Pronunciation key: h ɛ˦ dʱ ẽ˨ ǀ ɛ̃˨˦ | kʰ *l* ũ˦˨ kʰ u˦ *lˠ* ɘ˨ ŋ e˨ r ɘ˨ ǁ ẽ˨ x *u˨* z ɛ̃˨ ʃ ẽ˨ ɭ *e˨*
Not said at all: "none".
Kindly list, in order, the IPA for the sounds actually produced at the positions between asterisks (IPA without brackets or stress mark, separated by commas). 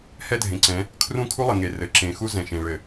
r, lˠ, u˦, ɘ˨